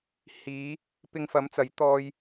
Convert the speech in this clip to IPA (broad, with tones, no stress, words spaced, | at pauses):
hiː˨˧ | pɪ˧ŋfɐ˨˥mt͡sɐ˨˥j t̪ɔː˧j